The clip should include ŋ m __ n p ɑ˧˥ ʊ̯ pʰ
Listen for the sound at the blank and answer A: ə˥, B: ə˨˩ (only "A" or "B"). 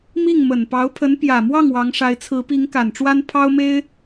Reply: B